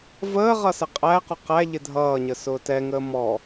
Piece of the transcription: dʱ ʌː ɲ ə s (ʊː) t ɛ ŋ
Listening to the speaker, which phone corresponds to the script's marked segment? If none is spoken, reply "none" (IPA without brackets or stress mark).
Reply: ʊː